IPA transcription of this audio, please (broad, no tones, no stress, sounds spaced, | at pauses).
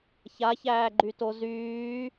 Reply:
ç a ç æː ɡ͡ǃ y t o z yː